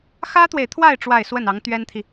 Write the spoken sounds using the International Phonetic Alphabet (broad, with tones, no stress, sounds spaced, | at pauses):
x ä˥ t̪ w e˨ ɪ̯ t̪ʰ w a˥˧ ɪ̯ ʈ͡ʂ w a˥˧ ɪ̯ s w ə˥˩ n ɑ˧˥ ŋ t̪ ɥ ɛ˥ n t̪ʰ i˨